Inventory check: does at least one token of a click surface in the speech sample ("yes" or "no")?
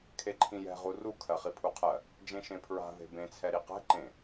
yes